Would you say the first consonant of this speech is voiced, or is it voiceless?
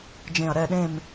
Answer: voiced